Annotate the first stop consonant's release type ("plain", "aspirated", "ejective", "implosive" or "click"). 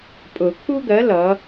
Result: ejective